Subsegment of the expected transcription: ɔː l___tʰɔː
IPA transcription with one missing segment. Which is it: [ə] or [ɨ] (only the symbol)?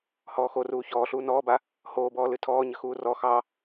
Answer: ɨ